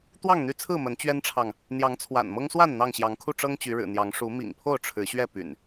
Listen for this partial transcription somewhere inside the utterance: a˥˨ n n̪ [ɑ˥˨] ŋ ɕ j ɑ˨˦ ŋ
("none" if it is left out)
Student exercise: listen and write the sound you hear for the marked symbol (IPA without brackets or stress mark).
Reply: ɑ˥˨